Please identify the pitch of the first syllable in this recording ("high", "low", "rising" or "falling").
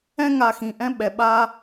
high